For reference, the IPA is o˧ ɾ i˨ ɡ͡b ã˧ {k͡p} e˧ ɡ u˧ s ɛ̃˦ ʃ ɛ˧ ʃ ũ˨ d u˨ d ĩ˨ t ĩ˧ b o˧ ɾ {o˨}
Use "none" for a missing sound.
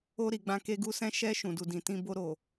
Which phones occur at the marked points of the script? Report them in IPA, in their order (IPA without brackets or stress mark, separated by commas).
k, o˨